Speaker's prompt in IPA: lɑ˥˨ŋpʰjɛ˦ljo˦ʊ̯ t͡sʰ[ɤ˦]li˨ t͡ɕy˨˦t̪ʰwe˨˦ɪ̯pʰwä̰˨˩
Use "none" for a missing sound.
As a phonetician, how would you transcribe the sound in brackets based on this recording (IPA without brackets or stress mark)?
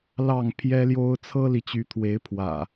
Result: ɤ˦